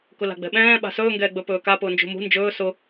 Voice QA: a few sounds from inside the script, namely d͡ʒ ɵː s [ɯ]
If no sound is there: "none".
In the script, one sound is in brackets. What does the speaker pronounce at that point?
ʊ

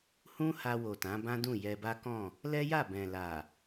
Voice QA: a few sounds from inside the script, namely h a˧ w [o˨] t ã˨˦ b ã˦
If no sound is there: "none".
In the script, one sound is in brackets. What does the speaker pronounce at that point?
o˨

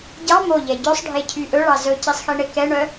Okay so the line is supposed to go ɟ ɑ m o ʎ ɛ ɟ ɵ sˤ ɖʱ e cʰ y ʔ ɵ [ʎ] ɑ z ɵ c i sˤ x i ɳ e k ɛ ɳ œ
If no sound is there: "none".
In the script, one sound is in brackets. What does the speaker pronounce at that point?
ɭ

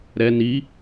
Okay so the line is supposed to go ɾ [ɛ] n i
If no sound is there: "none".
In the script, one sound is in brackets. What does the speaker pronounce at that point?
ɛ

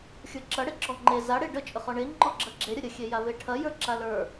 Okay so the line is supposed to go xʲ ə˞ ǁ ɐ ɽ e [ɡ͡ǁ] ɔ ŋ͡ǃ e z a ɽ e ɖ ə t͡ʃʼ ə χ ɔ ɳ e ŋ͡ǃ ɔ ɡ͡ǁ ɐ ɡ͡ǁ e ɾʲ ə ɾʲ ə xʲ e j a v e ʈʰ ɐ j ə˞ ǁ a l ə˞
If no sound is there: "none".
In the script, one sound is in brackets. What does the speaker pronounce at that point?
ǁ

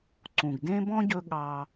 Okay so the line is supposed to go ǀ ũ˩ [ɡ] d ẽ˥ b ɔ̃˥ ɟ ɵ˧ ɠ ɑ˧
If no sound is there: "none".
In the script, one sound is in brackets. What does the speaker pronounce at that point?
ɡ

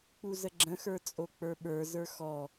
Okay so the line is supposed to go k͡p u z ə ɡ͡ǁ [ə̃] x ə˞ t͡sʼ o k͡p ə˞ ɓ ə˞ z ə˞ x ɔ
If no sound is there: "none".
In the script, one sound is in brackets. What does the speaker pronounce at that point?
ə̃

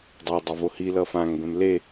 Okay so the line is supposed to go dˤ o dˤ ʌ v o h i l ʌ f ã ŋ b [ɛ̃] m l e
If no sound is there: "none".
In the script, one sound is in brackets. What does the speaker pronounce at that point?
ɛ̃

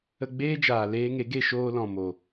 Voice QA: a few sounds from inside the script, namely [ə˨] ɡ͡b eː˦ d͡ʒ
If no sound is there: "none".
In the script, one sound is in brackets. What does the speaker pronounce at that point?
ə˧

